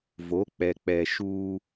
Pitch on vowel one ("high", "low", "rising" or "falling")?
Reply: rising